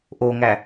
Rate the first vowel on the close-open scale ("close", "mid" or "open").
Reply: mid